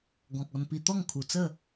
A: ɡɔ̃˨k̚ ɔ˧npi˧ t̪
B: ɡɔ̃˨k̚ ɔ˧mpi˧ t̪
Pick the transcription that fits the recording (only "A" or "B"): A